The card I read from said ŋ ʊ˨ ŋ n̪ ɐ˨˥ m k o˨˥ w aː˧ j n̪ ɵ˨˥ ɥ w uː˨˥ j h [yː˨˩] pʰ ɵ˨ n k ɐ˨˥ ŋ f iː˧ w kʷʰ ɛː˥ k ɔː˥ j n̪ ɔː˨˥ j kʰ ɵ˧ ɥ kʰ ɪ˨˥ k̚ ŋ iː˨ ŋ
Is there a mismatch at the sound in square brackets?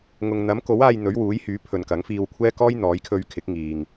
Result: yes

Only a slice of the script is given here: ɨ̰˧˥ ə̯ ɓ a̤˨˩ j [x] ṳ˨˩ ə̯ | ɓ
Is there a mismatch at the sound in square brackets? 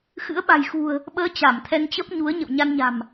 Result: no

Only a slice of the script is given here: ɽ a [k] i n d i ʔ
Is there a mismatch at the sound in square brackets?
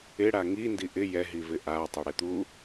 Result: yes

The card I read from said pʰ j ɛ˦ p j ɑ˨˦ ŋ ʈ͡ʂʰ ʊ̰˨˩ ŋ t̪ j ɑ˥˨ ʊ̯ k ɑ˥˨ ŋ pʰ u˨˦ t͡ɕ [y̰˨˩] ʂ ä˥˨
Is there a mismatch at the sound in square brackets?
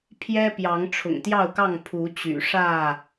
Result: no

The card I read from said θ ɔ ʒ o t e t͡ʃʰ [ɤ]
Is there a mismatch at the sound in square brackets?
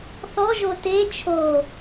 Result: yes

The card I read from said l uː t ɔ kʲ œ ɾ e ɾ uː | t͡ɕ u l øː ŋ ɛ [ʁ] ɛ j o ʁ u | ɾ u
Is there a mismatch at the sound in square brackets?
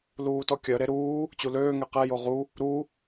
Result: yes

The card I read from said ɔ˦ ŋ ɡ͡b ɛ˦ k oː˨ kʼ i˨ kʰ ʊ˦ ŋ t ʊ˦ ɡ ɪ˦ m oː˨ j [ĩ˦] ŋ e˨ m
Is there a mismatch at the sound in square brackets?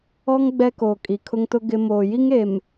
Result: yes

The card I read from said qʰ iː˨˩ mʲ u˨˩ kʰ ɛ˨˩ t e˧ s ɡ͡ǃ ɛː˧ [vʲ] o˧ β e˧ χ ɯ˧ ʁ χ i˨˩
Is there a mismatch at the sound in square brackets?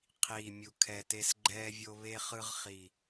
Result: no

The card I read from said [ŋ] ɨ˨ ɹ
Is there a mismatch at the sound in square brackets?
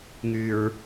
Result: no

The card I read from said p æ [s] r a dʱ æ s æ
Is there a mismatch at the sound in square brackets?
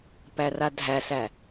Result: yes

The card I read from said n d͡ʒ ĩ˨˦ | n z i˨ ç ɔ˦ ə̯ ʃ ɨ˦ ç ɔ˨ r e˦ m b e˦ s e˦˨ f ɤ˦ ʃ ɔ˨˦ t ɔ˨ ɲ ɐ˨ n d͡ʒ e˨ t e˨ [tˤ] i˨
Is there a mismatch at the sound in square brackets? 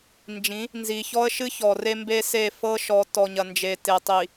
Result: no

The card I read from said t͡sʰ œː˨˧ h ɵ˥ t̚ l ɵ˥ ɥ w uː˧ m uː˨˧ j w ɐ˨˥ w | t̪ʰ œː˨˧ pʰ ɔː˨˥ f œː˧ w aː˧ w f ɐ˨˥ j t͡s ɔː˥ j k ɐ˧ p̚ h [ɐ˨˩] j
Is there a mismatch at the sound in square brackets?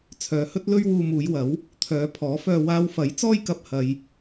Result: yes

